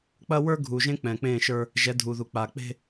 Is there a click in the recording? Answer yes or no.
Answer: no